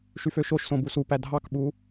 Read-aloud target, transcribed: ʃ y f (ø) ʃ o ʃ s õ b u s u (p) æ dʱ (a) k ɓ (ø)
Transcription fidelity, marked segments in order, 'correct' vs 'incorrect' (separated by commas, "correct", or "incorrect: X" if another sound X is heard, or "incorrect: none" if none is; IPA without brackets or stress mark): correct, correct, incorrect: ɑ, incorrect: u